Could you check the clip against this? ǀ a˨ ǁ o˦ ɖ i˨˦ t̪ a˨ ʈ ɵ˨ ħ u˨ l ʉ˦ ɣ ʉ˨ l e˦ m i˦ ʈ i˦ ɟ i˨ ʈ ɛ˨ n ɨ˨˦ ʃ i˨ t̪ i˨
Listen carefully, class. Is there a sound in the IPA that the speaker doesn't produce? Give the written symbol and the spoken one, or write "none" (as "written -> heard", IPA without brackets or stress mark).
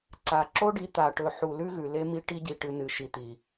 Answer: ɛ˨ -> ɨ˨